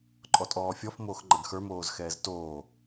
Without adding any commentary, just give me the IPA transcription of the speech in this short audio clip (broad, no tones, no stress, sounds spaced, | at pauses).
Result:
ǃʼ ɔ tʼ ɔː fʲ ɔ f m oː x ŋ͡ǃ ɐ ɡ x ə˞ m oː z x ɛː z t oː